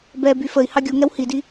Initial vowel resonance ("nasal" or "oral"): oral